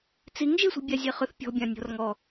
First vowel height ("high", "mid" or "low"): high